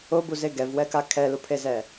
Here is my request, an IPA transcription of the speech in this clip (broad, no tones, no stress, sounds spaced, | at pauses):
o b u z e ɡ ɛ v w ɛ k a kʰ ɛ l u pʰ e z ɛ